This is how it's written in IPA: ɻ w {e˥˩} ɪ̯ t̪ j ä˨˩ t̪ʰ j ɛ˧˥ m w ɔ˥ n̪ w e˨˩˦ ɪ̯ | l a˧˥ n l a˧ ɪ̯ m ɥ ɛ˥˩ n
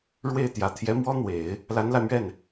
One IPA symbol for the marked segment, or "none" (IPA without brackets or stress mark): e˥˩